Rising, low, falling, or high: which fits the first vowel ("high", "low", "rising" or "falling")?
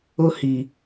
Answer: high